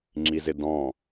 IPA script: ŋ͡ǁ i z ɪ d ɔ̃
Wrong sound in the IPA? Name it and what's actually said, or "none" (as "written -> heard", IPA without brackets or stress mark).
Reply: none